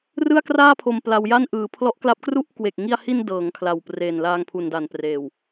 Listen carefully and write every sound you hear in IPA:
r ɯ˥˩ a̯ k r aː˥˩ pʰ o˧ m p l a˧ w j a˥˩ n ʔ ɯː˩˦ pʰ l ɔ˦˥ ʔ k l a˦˥ p̚ k r u˥˩ ʔ k w e˨˩ k̚ ŋ i˧ a̯ h i˧ n d ɤː˩˦ ŋ kʰ l a˨˩ w p r eː˨˩ n l aː˧ ŋ pʰ u˨˩ n d a˨˩ n p r eː˨˩ w

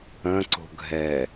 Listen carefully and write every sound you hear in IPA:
ə̃ ǀ o̤ ɡʱ ɛ

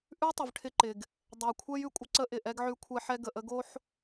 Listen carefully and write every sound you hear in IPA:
ʔ ʉ˦ tˤ ə˨ v ʈʰ ɪ˦ ǃ ɪ˨ ɡ | dˤ ə˨ u̯ kʷʰ ɛ˦ j ʉ˨ kʷʼ ə˦ ǀ ə˦ ʔ ɪ˨ ʔ ɛ˦ ɡ ʕ ʉ˦ kʷʰ ɛ˦ ħ ɛ˦ ɡ ə˨ ʔ ə˦ ɡ o˦ ħ

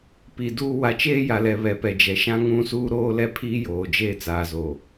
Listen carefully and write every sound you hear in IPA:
p i˨ d uː˦ w a˨ t͡ʃ eː˦ j a˨ l ɛ˨ β ɛ˨ p ɛ˨ d͡ʒ ɛ˨ ʃ ã˦ ŋ ũ˦ s uː˦ ɾ oː˦ l ɛ˦ pʰ iː˦ j oː˨ d͡ʒ eː˦˨ t͡s aː˨ z oː˨

